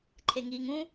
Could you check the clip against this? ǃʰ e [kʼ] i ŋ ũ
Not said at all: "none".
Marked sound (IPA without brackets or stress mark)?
ŋ